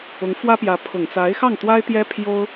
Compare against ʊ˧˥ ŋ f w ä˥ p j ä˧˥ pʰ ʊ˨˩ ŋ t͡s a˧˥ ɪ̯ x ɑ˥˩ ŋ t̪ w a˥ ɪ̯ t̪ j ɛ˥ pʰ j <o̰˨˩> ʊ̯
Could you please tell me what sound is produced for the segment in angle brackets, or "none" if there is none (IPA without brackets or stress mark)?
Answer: o˥